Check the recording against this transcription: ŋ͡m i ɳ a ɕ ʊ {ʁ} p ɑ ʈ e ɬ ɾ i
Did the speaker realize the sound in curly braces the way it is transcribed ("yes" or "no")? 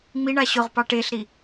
yes